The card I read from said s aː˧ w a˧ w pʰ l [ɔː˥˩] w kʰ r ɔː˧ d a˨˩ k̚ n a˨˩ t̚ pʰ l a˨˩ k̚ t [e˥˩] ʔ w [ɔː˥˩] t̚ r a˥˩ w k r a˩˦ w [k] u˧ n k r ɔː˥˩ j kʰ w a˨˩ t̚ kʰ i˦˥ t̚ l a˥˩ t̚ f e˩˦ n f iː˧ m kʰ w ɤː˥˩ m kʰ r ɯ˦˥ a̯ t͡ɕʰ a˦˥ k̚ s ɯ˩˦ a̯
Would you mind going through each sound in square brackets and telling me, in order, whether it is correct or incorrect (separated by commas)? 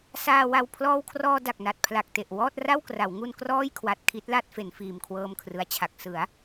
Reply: incorrect, incorrect, correct, incorrect